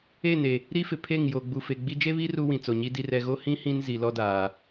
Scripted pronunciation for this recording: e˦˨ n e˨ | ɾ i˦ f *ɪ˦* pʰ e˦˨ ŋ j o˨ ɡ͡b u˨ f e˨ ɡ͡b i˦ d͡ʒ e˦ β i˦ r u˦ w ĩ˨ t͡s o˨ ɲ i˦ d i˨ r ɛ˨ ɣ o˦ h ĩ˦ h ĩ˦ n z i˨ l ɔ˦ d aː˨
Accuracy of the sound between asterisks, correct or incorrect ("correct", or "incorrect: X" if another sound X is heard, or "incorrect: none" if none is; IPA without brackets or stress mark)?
incorrect: ɪ˨